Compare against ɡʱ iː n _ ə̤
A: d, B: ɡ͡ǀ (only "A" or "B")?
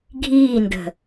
A